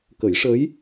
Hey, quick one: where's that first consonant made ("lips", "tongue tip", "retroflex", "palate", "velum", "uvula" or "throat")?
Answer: velum